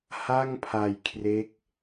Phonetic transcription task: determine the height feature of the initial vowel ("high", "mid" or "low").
low